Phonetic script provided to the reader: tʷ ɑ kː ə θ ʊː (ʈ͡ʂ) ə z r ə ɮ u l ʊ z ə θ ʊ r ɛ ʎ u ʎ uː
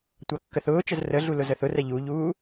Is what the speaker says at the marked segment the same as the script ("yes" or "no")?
no